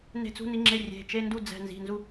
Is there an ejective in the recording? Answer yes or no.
no